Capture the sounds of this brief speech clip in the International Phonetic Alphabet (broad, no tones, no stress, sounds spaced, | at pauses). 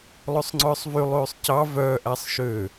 lˠ ø sˤ ŋ͡ǀ œː sˤ v y lˠ ʉː sˤ c ɑ v œː ʔ æ sˤ ʃ ø